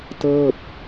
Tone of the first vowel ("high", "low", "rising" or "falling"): falling